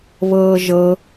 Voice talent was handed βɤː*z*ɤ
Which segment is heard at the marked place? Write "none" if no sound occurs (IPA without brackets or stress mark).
ʒ